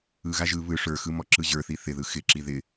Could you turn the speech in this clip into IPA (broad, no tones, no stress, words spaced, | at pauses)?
ɯɣa ʒɯ βɯ ʂə˞xɯ mɔǁɯʑə˞θi θɪðɯ xɪǁi ðɪ